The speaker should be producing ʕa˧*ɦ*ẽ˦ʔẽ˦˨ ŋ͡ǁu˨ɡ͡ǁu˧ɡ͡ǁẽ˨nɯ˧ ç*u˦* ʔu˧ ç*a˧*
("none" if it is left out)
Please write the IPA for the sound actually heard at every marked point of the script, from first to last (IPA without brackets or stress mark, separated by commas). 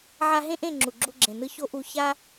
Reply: ɦ, o˦, a˦